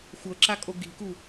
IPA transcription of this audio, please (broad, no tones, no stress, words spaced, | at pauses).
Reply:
xʷɤǁakʼo ɡi̤ku